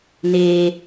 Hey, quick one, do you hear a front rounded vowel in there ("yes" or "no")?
no